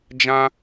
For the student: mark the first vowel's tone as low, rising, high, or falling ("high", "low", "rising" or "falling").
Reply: high